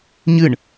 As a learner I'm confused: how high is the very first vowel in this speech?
high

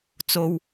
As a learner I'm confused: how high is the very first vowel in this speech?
mid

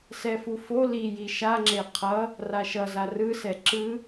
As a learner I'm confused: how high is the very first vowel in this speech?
mid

